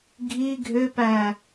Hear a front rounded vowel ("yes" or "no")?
yes